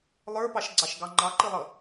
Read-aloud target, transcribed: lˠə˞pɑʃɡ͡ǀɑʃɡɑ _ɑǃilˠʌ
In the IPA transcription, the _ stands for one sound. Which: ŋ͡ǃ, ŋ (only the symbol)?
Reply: ŋ͡ǃ